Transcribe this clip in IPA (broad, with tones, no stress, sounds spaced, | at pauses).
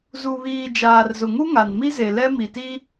z u˨ β iː˨ d͡ʒ aː˨ r z ʊ˨ ŋ u˦ ŋ a˨ n m i˦ z e˨ l ɛ˦ m i˨ t i˦